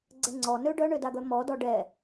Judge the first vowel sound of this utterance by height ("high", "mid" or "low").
mid